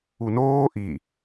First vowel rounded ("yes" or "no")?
yes